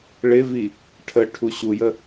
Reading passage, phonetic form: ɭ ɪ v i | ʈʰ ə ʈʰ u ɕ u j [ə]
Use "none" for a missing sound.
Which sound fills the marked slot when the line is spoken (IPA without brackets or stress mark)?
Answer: ə